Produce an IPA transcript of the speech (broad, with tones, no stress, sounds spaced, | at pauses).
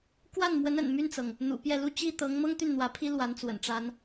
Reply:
k w a˥˩ n m w ə˧˥ n ə̰˨˩ n m y˥˩ n t͡s ɤ˩ ŋ | n̪ ṵ˨˩ p j ɛ˥˧ l u˥˧ t͡ɕ i˥˩ t̪ ɤ˧˥ ŋ m ɤ˥ ŋ t̪ y˥˩ n n̪ w ä˧˥ pʰ i˥ l w a˧˥ n t͡s w ə̰˨˩ n ʈ͡ʂ a˥ n